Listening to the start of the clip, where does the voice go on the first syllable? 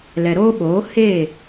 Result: low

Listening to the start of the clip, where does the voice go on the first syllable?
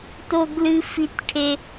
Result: high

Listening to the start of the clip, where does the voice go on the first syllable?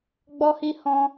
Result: high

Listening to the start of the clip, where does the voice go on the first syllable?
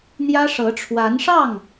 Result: high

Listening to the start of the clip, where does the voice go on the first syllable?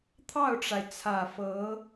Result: falling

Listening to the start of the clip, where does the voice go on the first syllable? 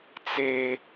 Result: high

